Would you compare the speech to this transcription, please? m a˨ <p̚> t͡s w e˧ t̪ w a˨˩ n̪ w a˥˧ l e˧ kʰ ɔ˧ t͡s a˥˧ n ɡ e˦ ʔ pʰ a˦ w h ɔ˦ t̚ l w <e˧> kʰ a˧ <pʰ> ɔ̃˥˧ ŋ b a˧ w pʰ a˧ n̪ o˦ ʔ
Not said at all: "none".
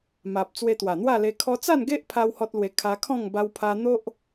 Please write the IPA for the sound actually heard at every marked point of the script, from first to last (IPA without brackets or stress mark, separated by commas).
p̚, e˧, kʰ